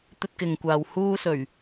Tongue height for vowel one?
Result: mid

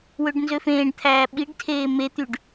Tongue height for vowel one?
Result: mid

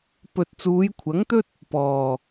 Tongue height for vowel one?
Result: mid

